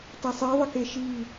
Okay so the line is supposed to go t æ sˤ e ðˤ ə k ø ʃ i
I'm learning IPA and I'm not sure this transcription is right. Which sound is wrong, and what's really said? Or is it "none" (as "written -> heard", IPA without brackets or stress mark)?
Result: ø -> e